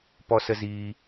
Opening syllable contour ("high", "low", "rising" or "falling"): high